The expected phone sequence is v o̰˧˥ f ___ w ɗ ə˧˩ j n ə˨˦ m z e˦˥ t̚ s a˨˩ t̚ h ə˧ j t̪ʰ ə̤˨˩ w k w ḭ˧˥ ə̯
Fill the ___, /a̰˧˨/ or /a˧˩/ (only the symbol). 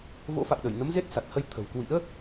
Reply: a̰˧˨